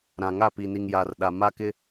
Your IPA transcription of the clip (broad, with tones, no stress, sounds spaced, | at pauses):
ɾ ã˨ ŋ a˦˨ p i˨ n i˨ ŋ j a˨ r ɗ a˨ m a˦ k ɪ˦